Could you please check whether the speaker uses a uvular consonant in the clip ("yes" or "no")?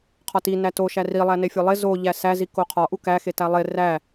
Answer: yes